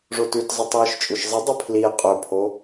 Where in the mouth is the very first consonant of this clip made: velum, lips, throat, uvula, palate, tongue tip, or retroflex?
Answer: retroflex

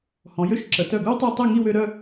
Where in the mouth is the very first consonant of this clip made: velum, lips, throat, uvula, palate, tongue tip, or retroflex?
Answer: throat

